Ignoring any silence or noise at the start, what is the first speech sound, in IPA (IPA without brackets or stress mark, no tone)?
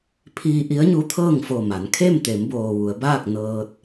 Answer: pʰ